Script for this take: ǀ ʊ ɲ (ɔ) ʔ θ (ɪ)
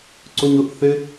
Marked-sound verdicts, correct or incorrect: incorrect: ʊ, correct

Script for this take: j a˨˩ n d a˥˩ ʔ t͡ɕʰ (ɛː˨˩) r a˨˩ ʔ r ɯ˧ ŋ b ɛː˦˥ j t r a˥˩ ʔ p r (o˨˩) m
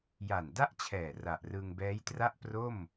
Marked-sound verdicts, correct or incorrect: correct, incorrect: o˥˩

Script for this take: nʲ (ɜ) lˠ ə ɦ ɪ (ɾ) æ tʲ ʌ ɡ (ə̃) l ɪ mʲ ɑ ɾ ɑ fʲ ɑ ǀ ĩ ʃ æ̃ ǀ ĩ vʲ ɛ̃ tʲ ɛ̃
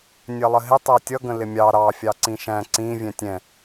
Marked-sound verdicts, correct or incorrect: correct, incorrect: tˤ, correct

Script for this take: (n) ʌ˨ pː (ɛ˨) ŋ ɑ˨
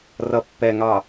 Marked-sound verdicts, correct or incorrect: incorrect: r, correct

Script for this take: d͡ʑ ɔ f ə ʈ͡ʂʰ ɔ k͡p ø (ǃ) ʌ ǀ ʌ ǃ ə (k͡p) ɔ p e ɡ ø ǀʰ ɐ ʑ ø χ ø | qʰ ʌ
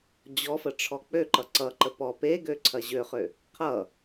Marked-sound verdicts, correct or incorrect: correct, incorrect: p

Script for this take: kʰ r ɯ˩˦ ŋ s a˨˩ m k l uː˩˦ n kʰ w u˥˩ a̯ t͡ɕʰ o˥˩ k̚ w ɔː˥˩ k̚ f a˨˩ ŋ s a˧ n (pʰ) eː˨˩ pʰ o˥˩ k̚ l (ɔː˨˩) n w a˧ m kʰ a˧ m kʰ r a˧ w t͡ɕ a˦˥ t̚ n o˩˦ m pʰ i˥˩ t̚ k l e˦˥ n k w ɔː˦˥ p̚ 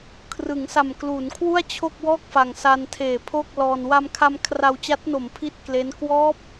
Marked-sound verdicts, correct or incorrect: incorrect: tʰ, incorrect: ɔː˧

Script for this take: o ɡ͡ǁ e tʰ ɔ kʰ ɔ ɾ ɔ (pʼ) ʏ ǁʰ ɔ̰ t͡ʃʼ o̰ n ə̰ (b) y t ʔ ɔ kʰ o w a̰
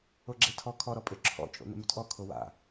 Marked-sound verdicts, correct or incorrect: correct, incorrect: m

